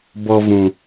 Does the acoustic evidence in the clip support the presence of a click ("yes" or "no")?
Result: no